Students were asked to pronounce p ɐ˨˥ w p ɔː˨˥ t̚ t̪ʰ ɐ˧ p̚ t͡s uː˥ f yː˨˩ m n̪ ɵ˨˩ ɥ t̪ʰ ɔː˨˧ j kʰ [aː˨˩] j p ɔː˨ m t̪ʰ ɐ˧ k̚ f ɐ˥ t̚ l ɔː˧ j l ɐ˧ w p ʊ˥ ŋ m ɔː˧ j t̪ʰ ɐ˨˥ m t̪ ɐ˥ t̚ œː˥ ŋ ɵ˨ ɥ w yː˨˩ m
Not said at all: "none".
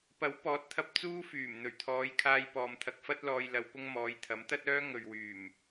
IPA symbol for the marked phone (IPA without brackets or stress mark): aː˧